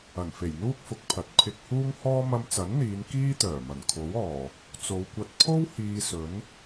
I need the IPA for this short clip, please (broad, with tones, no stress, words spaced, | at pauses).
ɐ˨˩nfe˨˩jn̪uː˥k̚fʊ˨k̚ pʰɐ˨t̚pʰɪ˧k̚huː˥ŋ hɔː˥ mɐ˧mt͡sɐ˨˥nn̪iː˨˧n kiː˥ t̪œː˨˩mɐ˨˩n kʰo˨˥wɔː˨˩ | t͡so˨˧wkʷɐ˧t̚ pʰo˥w hiː˧sɵ˨˥n